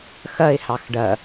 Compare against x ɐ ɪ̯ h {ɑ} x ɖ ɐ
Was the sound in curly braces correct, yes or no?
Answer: yes